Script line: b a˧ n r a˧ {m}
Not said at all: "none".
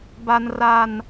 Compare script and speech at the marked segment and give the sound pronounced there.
n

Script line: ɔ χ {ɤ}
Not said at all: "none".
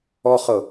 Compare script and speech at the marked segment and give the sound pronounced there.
ɤ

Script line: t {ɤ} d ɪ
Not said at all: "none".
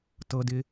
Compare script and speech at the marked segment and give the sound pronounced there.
ɤ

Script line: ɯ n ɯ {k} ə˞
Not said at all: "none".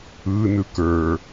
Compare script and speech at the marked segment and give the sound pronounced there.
k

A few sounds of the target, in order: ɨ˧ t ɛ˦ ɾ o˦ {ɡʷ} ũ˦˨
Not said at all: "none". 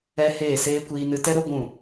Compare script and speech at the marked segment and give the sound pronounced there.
ɡʷ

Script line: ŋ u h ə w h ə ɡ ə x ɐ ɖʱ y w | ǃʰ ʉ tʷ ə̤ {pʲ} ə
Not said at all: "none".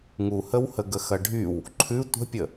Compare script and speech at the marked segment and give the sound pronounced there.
pʲ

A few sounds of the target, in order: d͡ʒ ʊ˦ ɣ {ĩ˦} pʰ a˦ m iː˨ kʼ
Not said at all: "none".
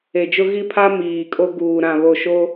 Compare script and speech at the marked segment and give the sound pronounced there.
i˦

